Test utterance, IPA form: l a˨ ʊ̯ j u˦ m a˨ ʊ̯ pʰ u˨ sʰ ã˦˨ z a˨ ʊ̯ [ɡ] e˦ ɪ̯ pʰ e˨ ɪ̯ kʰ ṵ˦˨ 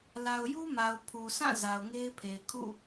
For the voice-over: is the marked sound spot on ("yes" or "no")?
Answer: no